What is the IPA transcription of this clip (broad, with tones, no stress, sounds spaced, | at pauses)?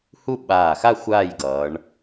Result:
h u˥˧ ɓ aː˧˩ x a˥˧ xʷ aː˥˧ j ɡ ʌː˩˧ ɳ